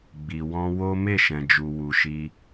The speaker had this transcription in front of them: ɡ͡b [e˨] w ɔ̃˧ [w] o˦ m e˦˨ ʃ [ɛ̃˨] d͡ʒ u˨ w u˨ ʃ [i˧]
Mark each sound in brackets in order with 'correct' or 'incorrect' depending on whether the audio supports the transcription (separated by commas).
incorrect, correct, correct, correct